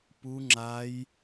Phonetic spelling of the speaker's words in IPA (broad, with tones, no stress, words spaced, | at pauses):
pu˦ŋ͡ǁa˦j